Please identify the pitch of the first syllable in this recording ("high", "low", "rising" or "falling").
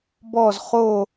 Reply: falling